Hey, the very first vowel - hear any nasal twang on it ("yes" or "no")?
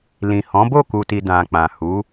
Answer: yes